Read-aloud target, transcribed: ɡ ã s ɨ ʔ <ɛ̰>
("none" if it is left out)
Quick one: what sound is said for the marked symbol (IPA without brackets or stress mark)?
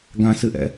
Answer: ɛ̰